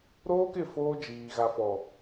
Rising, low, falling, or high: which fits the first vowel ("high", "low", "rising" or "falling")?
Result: high